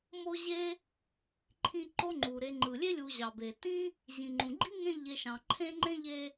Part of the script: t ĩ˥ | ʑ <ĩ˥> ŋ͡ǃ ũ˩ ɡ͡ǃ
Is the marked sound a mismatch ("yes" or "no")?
yes